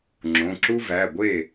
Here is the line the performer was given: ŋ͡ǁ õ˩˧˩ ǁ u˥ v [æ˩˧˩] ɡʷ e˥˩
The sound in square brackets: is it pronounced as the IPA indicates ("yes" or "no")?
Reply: yes